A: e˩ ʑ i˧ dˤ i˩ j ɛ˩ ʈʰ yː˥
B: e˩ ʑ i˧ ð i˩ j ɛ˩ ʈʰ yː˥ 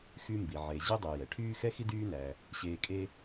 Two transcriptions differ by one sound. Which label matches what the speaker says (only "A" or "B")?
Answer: A